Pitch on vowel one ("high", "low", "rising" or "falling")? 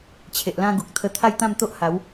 low